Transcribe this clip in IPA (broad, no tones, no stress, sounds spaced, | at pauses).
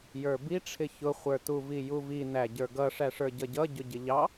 j ə˞ b i ʈ͡ʂʰ ɪ ç ʊ χʷ ə˞ t u v i j u v i n æ ɟ ə˞ ɡ ʌ ʂ æ ʂ ə˞ ɟ ʌ ɟ ʌ ɟ ʊ ɟ ɪ ʎ ɑ